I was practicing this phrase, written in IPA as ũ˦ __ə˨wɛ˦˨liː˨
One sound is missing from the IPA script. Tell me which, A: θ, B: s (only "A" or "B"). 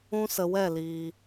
B